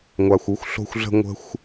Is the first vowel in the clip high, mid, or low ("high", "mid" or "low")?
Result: low